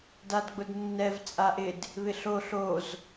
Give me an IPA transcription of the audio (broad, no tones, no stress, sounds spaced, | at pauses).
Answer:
d a d ɡ͡b ʊ d nː ɛ v t͡sʼ a ʔ ɪ d | β ɪ ɬ o ɬ o z